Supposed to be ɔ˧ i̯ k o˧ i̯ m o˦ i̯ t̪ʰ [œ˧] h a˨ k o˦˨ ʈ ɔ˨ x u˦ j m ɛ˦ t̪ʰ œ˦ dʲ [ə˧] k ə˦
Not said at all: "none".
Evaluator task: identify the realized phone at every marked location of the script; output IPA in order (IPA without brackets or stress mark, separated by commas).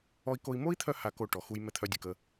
œ˧, ə˨